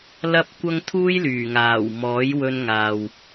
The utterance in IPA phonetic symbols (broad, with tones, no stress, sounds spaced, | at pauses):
l ɐ˧ p̚ kʷ ɐ˧ ŋ t̪ʰ uː˥ j l yː˨˩ ŋ aː˨˩ w m ɔː˨˥ j w ɵ˧ n ŋ aː˨ w